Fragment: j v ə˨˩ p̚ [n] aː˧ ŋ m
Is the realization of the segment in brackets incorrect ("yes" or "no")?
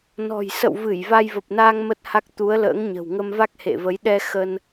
no